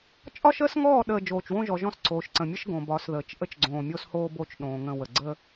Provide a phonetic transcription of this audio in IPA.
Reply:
t͡ʃʼ ɒ˦ ʃ əː˦ s ŋ ɔː˦˨ ɗ əː˨ d͡ʒ oː˨ t͡ʃ w õ˦ ʒ ɔ˨ ʒ ɔ̃˦ s ǀʰ oː˨ ʃ ǀ ə̃˨ mʲ ə˦ ʃ ɡ õ˨ b ɒ˨˦ s ð əː˨ t͡ʃ ʔ ə˦ t͡ʃ ɡ͡ǀ õː˨ mʲ o˦ s h oː˦ b o˦ t͡ʃ ɗ õː˨ ŋ ə̃˦˨ w ə˨ ɡ͡ǀ əː˦

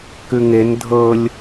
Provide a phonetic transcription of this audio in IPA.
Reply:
k ʉ ŋ e n dʱ ɤ lʲ

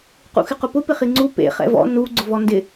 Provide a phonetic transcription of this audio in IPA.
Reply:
q ṵ x ɪ q ʊ p ʊ p ɪ χ i ŋ͡ǀ u p ḛ χ ɛ̰ v ɔ̰ n u ɡ͡ǀ ʊ v ɔ n d ɪ

